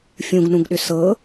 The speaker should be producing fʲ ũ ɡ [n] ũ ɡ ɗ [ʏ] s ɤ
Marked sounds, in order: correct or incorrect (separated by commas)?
correct, correct